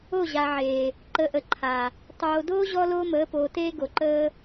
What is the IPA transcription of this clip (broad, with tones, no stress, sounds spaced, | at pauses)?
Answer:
o˦˨ ʑ a˨ ʕ eː˨ | ǃ ə˨˦ ʔ ə˨ ǃʰ a˨ | tˤ oː˨ d oː˦ ʑ ɔ˦ l oː˦ m əː˨˦ p oː˨ t eː˦ ɡ o˨ ǃ əː˦